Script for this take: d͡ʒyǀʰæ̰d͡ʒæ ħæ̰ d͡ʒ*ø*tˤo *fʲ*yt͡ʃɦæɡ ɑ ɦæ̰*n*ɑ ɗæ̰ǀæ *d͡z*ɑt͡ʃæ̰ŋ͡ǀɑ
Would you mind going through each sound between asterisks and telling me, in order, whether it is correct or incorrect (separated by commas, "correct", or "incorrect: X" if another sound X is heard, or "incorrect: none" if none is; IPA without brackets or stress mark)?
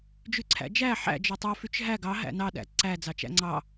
correct, incorrect: f, correct, correct